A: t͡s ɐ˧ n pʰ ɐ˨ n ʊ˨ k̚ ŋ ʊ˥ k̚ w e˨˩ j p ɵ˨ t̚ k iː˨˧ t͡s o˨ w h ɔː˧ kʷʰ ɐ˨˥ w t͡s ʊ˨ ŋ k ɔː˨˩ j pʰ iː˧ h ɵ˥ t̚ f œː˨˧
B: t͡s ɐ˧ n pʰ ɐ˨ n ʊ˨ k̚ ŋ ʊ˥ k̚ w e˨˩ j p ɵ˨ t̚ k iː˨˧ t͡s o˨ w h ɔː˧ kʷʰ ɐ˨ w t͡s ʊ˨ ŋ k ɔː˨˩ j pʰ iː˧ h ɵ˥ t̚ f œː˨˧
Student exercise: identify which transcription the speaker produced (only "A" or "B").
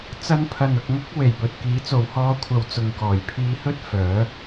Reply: B